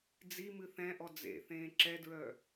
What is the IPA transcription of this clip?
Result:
d͡z i m ɨ θ ɛ̃ ʔ ɔ d͡z ḛ θ ẽː ǁ ɛ d ɹ œ

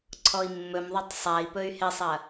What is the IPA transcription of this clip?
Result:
ǀʰ ɔ i̯ mː ɵ m ðˤ ɵ tˤ sˤ a i̯ p ɵ y̯ h ɪ sˤ ɐ

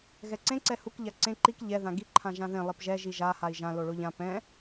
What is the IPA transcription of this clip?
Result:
ɣ ɛ ǀ ẽ ǀ ɛ h u k ʎ a ǀ ẽ ǃ i k ʎ ɛ ð ã ɡ i ǃʰ ã ʒ ã ð ẽ lˠ i p ʒ ɛ ʒ i ʒ a h a i̯ ʒ ã l o ɭ o ʎ ã p ɛ̃

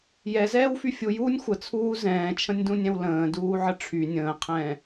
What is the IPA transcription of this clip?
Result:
j ɛ z ɛː w f y fʲ u j uː nʲ xʷ ə t͡sʰ uː z ɛ̃ː t͡ʃʰ ə̃ nʲ d ũ nʲ ɛ̃ w l ə̃ː d uː ʕ ə ʈ͡ʂʰ y nʲ ə̃ː qʰ ɛ̃ː

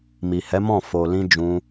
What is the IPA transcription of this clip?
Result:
m i˨ h ɛ˨˦ m ɔ̃˦˨ f o˨ l ĩ˧ d͡ʒ ũ˧

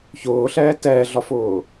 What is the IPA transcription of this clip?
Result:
ç ʊː ɬ ɛː t ɛː ɮ ɒ f ʊː

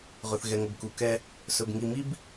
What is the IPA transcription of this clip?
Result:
ʁ ɵ˨ θ ɣ ɛ˨ ŋ ə˨ b k u˨ k ɛ˦ | s ɵ˨ b ŋ i˨ m i˦ b

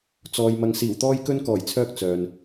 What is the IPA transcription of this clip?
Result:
t͡s ɔː˨ j m ɐ˧ ŋ s iː˨˩ w t̪ ɔː˥ j k ɵ˥ n k ɔː˨˩ j t͡sʰ œː˧ k̚ t͡s œː˨ n

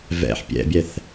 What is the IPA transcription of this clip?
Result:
v ɛ̰ ħ pʲ ɛ̰ bʲ ɛ θ

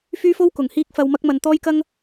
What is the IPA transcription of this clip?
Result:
f yː˥ f o˥ w k ʊ˨ ŋ h iː˥ k̚ f ɐ˧ w m ɐ˥ k̚ m ɐ˧ n t̪ ɔː˥ j k ɐ˥ ŋ

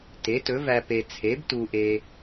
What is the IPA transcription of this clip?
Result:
t e˩˥ t ɵ˩˥ v æ˨ p e˨ t͡sʰ e˩˥ b t u˨ ʔ e˨

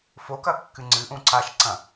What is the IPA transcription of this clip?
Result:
f o k ɐ kː ɨ ŋ͡ǀ ɨ ʔ ũ ǀ a ʃ ǀ ɐ̃

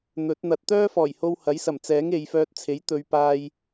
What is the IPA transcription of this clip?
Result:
n̪ ɵ˨˥ t̚ n̪ ɐ˧ t̚ t̪ œː˥ f ɔː˨˩ j h o˧ w h ɐ˨˥ j s ɐ˨˩ m t͡s ɛː˨˥ ŋ e˨˧ j f œː˧ t̚ t͡sʰ e˨˥ j t̪ ɵ˨˧ ɥ p aː˧ j

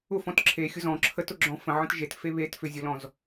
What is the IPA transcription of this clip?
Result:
ʊ f ɔ̃ t ǁʰ e xʲ ʊ z ɔ̃ ǁʰ ə t ʊ ɡ͡ǁ ɔ̃ f ə̃ ʕ ə̃ t ʒ e t f e β e t f ʏ zʲ ʊ l ɔ̃ z

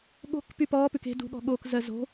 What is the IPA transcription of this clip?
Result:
ɠ o̤ k p y p ɔː p ʉ k e̤ d ṳ ɠ ɔ̤ ɠ oː k z ɜ z o̤

